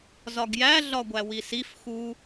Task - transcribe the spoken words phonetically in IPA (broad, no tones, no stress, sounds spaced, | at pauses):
z ɒ ɡ j æ ɮ ɒ ɡʷ æ w i s i f x u